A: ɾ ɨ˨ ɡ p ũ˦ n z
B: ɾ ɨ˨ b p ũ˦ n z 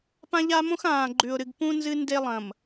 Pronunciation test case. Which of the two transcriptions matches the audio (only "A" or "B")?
A